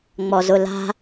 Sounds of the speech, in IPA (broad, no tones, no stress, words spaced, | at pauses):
ŋ͡mɔzʊla̤